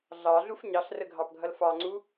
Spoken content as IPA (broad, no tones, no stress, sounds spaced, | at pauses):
ɮ ɑ ɮ u f ɲ ɑ ɬ r ə ɡʱ ɑ p ɡʱ ʌ l f ɑ ŋ͡ǀ u